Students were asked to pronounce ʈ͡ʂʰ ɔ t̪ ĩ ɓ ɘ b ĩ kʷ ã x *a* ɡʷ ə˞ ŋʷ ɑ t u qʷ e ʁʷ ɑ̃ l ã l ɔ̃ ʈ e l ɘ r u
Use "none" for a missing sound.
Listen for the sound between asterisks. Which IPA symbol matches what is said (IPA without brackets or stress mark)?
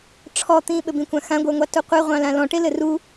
ã